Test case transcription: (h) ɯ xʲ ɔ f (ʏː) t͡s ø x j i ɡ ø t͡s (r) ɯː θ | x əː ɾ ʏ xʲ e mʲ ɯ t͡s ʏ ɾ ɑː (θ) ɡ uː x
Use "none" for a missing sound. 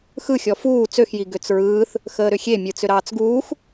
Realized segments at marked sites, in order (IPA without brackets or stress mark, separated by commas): x, uː, ɹ, t͡s